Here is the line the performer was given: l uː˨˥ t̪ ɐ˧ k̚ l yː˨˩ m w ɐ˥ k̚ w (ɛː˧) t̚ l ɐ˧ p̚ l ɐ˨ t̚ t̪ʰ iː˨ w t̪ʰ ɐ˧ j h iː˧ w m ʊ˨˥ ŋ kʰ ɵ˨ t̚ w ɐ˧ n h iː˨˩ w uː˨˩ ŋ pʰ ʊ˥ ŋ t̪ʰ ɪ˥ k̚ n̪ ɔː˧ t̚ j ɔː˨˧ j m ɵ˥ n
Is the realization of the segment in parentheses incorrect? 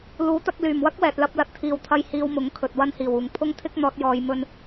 yes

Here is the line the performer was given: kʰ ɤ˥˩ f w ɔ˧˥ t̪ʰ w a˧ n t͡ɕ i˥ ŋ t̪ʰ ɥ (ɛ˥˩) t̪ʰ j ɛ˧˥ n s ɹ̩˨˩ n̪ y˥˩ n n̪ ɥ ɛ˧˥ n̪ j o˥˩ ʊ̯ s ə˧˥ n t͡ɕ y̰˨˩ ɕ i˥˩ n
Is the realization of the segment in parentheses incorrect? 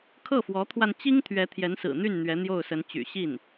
yes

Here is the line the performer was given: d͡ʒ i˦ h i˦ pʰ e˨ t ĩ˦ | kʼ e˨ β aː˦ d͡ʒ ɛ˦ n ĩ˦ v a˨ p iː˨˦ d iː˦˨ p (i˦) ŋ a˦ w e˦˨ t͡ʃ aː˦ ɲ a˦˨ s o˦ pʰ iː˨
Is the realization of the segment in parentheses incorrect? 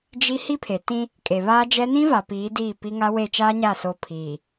no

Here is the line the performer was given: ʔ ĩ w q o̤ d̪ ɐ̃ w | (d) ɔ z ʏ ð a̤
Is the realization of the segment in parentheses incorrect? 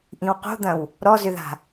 yes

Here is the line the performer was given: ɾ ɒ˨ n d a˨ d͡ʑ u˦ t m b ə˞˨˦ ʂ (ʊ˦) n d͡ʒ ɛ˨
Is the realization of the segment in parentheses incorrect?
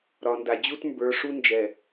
yes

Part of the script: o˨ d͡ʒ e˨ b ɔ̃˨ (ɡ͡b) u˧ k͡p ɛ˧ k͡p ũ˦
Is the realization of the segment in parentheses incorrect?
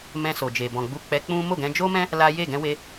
no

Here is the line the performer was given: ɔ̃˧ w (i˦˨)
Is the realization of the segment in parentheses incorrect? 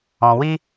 yes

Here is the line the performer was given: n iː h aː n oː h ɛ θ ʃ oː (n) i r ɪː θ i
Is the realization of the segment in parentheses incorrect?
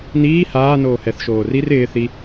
yes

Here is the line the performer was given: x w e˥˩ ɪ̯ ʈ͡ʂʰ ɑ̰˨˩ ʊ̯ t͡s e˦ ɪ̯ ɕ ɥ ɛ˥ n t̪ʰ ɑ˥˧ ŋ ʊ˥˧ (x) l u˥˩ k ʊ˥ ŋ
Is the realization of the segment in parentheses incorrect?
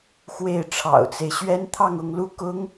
yes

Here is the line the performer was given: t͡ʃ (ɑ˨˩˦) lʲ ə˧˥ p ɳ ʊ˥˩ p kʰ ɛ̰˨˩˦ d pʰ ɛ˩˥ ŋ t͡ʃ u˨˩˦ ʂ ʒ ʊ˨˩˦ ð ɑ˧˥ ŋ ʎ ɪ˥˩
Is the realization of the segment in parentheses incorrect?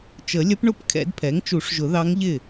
yes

